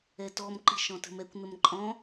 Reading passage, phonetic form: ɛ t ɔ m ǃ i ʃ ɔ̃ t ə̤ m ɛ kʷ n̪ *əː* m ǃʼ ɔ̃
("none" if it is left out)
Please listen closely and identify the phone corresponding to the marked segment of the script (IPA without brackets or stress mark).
ə